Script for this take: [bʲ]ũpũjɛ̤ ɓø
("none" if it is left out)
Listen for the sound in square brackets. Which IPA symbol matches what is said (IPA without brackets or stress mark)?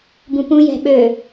b